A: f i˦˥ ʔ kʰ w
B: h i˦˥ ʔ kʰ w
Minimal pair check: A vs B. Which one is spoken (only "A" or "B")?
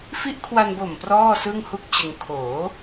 A